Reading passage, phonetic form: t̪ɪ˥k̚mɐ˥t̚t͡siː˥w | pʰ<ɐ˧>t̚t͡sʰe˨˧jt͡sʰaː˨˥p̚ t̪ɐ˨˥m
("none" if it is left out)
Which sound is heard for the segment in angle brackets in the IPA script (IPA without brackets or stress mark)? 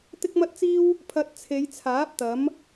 ɐ˧